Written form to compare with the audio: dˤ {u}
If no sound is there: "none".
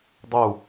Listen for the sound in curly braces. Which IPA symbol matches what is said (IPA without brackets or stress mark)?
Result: u